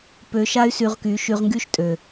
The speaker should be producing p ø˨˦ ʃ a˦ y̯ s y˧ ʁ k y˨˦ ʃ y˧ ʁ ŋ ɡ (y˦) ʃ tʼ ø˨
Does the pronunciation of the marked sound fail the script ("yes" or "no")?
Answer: no